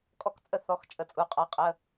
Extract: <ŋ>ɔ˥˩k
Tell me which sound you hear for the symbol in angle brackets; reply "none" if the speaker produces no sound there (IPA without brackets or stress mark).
kʼ